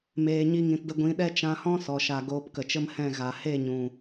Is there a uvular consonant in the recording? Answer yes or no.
no